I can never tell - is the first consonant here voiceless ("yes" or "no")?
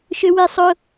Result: yes